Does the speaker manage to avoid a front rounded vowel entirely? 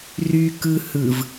no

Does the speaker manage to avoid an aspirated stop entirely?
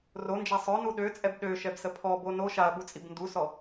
no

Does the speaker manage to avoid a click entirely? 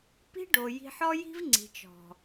no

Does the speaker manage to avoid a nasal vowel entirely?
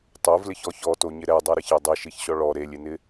yes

